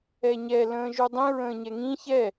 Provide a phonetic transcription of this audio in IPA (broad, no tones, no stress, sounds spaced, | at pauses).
ɛ ɲ ɛ l ə̃ː ʒ u dˤ ĩ ɹ ə̃ː ɲ ɛ ŋ ĩ ç ɛ